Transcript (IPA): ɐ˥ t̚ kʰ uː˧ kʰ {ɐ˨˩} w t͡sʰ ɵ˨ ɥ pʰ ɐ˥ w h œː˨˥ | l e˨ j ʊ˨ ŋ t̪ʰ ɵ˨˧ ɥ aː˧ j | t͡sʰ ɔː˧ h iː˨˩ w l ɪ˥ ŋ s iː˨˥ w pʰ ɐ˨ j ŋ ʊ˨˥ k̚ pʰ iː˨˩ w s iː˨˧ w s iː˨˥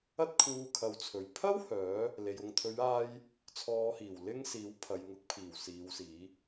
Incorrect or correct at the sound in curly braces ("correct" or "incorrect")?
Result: incorrect